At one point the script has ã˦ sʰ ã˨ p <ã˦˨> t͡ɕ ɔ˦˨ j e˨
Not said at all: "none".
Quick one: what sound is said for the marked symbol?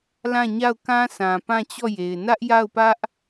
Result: ã˦˨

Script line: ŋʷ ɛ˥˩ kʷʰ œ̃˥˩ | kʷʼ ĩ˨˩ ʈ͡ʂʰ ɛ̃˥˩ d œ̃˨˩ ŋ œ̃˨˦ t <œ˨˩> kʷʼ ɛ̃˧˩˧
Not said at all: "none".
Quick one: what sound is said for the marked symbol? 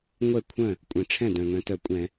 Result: œ˨˩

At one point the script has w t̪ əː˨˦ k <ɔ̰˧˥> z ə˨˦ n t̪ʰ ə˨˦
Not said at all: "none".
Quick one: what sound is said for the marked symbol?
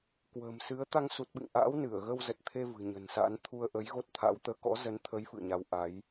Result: ɔ̰˧˥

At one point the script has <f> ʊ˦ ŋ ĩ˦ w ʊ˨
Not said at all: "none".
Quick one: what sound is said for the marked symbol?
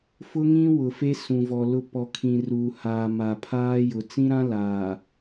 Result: f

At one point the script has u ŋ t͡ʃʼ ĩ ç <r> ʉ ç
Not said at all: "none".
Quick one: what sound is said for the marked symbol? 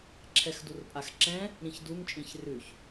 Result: r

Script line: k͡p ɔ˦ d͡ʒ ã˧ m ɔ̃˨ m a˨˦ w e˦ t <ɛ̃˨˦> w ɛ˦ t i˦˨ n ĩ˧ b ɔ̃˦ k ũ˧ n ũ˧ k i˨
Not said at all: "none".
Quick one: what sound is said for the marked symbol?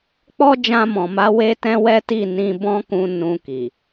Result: ɛ̃˦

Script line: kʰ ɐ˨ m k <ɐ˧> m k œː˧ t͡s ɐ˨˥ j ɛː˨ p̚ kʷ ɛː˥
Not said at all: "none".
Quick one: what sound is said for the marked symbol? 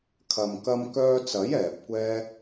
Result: ɐ˧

